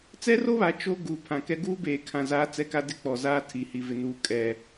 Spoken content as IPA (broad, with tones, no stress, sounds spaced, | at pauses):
t͡s ɛ˦ r o˦ β a˨ t͡ʃ o˦ ɡ uː˨ pʰ ã˨ k ɛ˦ ɡ uː˦ b eː˨ kʰ ã˨ z aː˦ t͡s ɛ˦ k a˦ d ɪ˦ k͡p ɔ˨ z aː˦ tʰ i˨ h i˨ v ɪ˨ n uː˦ kʼ ɛ˦